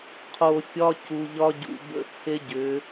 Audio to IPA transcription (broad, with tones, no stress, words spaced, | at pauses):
qʰo˨fʲɒ˦ cu˨ʎɒ˦ɟṵ˨ bə̰˦t͡sʰe˦ɟʏ˨˦